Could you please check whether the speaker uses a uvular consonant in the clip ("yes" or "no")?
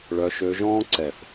no